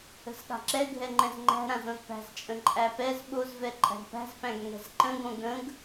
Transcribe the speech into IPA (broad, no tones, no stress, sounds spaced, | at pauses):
ə̤ z ɠ a̤ ǁ ɛ ɡʱ ɛ ŋ͡ǃ ɛ̃ z ŋ͡ǃ æ̤ ɾ ã z õ z p æ̤ z t͡ʃʼ ə̃ ǃʼ æ p ɛ z ɓ o z v ɛ ǃʼ æ̤ ɡ p æ̤ z p æ̃ ɡ ŋ ɛ̤ z ǃ ə̃ ɡ õ ɡ ə̃ ɡ